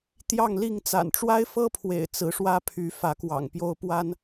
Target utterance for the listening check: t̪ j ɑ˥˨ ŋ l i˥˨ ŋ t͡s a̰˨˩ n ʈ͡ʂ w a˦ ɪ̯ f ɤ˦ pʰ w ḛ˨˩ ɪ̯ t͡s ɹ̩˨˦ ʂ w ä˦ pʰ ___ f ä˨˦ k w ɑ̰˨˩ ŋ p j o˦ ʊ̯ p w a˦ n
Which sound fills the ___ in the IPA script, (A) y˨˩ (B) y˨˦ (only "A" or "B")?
B